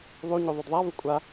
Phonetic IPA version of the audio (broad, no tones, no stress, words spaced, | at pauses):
ðˤuɲu ðˤudðˤavu kʷʼa